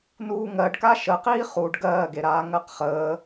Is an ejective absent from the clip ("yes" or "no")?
yes